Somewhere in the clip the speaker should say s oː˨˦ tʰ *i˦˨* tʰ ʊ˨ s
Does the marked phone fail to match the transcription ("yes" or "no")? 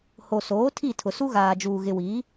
no